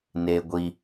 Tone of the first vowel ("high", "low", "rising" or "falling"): high